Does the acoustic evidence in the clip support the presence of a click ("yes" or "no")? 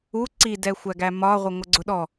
yes